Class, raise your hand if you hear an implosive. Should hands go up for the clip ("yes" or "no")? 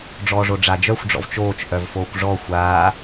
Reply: no